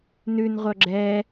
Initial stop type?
click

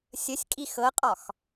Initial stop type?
ejective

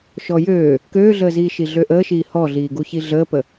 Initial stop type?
plain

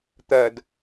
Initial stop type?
plain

